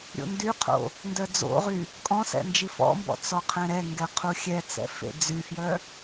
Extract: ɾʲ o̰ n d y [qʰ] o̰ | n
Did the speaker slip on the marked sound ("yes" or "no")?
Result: no